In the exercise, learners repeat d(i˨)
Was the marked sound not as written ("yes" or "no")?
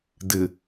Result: yes